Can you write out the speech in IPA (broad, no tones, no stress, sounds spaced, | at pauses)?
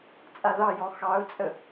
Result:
t͡sʼ a ð ɑ j ɔ x ɑ ʊ̯ t͡sʼ ə